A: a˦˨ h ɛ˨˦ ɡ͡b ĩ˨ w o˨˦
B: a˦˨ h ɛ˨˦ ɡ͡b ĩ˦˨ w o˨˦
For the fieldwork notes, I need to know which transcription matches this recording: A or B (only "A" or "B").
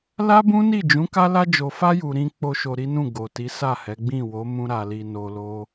B